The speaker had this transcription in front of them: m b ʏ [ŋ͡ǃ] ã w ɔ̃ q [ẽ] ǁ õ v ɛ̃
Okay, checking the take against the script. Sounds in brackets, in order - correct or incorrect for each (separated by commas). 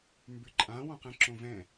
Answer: incorrect, incorrect